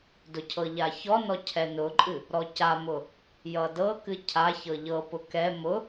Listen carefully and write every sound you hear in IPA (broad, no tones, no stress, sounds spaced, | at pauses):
d ʊ cʰ ɤ ʎ a ç ɔ n ɔ cʰ ɛ n ʊ ǃʼ ɨ | ɾ ɔ c a m ʊ | j ʌ d ɤ k ɨ cʰ a ç ɤ ʎ ɤ p ʊ k ɛ m ʊ